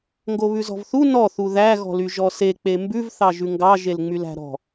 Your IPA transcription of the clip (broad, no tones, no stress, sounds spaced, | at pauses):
ŋ ɡ o β ʉ z ɔ̤ v θ u n ɔ θ u ð æ ɣ ɔ̤ l y ʒ ɔ s e k͡p e m b ʉ v θ ɑ ʒ ʉ ŋ ɡ ɑ ʒ e l ŋ͡m y l æ̤ ɾ ɔ̤